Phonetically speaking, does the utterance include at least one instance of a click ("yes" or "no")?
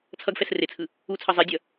no